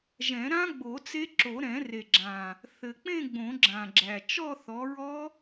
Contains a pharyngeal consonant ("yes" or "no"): no